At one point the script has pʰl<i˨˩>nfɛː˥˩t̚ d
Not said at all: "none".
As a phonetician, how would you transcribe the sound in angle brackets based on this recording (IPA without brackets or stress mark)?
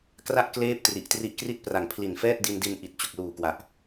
i˨˩